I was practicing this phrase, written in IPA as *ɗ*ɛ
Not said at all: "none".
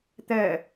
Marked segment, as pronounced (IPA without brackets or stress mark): t̪